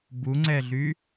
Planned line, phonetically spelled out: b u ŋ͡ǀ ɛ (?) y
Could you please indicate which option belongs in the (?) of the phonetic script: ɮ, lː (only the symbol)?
ɮ